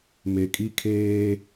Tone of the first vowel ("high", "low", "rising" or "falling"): low